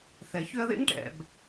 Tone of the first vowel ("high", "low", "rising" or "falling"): low